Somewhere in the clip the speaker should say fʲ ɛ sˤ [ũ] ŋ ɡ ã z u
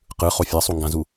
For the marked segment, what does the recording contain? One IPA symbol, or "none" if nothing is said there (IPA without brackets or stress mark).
u